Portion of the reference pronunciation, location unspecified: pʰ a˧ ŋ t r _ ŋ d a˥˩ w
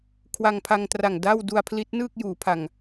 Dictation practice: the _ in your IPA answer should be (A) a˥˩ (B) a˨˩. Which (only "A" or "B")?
B